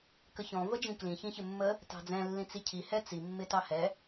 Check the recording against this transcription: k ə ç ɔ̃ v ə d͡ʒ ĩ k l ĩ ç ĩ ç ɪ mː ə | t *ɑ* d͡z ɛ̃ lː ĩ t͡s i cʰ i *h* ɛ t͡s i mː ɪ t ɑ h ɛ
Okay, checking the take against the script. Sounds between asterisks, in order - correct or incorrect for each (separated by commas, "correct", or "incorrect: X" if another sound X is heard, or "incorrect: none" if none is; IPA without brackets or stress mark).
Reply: incorrect: ɑ̤, correct